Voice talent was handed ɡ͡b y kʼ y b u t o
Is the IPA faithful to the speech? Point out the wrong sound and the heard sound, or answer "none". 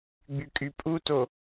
b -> pʼ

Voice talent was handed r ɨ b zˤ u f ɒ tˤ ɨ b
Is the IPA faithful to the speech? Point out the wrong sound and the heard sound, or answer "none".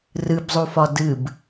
tˤ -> d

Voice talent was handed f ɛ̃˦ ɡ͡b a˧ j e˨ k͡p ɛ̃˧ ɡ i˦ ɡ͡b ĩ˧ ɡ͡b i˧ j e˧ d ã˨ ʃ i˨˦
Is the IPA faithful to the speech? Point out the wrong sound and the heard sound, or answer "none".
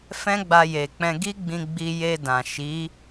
none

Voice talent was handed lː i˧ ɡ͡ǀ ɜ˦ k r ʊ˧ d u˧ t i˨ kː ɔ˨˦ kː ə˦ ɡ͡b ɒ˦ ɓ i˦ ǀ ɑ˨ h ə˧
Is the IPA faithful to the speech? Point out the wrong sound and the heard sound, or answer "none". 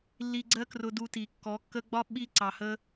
none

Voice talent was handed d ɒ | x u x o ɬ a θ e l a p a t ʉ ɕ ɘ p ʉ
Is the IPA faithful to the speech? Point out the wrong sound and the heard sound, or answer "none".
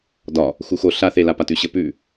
none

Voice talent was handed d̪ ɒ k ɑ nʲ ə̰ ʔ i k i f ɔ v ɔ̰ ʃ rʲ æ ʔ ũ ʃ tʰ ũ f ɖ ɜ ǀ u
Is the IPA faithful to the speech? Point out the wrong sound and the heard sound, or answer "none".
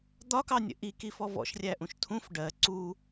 none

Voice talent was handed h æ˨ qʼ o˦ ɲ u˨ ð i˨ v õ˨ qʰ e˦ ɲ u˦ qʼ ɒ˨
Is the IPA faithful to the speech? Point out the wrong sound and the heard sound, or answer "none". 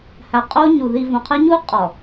none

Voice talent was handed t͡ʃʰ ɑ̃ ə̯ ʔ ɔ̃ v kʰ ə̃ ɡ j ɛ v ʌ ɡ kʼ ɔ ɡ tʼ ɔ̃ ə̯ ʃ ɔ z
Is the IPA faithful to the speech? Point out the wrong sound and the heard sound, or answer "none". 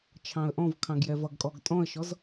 ə̃ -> ɑ̃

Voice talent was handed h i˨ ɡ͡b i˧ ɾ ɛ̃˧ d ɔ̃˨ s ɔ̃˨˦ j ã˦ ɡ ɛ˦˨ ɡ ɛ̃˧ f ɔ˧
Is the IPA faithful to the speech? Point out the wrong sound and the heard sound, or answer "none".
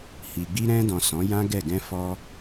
none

